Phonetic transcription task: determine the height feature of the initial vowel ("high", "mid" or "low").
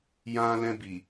low